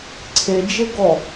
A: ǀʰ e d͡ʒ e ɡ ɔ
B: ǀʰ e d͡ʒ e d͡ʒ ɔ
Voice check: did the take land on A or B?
A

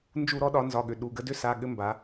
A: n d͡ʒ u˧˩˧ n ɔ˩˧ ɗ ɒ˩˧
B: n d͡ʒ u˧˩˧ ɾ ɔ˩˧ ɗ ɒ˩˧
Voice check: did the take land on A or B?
B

